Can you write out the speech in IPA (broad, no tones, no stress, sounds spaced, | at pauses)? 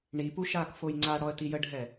ɳ i p u ʃ aː k f o j ŋ͡ǀ a ɽ ɔ ə̯ t i j ə ɖʱ ɛ